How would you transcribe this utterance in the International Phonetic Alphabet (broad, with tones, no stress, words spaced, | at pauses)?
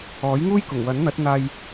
ɔː˨˥jŋuː˥j kʊ˨˩ŋwɐ˨˥nn̪ɐ˨˥t̚ n̪aː˧j